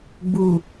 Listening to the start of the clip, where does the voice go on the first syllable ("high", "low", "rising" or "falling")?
low